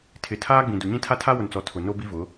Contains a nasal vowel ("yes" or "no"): yes